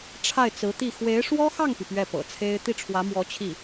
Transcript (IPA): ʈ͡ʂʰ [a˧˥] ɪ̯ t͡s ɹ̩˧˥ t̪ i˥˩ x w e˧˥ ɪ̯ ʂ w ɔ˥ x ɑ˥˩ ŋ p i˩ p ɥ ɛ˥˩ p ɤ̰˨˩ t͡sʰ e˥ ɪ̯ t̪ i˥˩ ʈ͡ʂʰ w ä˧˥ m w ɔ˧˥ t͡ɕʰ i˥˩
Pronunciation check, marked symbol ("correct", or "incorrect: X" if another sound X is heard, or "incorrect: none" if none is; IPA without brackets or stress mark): incorrect: a˥˩